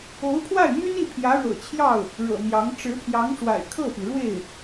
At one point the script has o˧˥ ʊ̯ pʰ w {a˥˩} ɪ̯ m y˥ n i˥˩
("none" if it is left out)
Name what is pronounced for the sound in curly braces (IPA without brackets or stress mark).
a˥˩